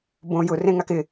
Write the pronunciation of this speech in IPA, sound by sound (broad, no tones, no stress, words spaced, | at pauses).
bõ jʊ rẽŋakɪ